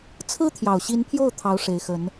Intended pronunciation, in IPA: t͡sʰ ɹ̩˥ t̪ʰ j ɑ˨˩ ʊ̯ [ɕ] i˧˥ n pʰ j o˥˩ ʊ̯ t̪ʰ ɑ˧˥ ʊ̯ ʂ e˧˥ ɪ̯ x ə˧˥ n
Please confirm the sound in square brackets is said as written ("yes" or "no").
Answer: yes